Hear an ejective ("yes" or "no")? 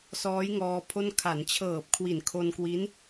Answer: no